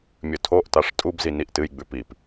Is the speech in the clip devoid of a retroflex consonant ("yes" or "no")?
no